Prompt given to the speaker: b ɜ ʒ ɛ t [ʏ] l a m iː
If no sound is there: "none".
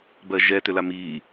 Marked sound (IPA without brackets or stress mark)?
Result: ʏ